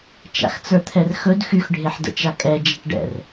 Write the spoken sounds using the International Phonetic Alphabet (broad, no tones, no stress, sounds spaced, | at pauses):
t͡ʃ a̰ x t͡s ə˞ t̪ʰ ɛ r x ɵ d x y x ɖʱ e ħ d ə̰ t͡ʃ a kʼ ɛ d͡ʒ a ʈ ɖ ɛ̰ r